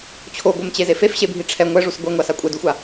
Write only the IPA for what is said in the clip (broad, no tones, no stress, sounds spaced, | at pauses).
t͡ɕʰ o ɡʷ ɛ m t͡ɕ e z e f e f ɕ e bʱ i ʈ͡ʂʰ ɛ ŋʷ ɛ ʐ u s ɡʷ ɛ ŋʷ a s a kʷʼ ɛ d u xʷ a